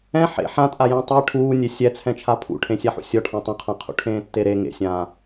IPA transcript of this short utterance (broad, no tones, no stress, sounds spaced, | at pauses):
ɛ̃ ħ ḛ ħ ã tʼ a j ɛ̃ tˤ ɛ ʈʰ uː nʲ e sʲ ɛ t͡sʰ ɛ̃ t͡ʃʰ a pʰ ṵ ʈʰ ẽ sʲ a ħ ṵ sʲ ɔ ʈʰ ã tˤ ũ qʰ ã qʰ ṵ ʈʰ ẽː tː e ɾ e ŋ ḛ sʲ ãː